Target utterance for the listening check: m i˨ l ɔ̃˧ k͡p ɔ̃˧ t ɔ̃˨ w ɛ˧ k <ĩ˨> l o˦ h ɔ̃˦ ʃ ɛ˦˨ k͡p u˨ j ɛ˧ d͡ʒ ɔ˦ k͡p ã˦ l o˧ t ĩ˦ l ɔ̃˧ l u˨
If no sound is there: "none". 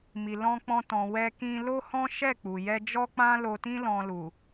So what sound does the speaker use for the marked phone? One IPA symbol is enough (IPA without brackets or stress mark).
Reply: ĩ˧